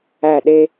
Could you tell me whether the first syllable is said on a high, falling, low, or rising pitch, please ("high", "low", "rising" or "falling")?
falling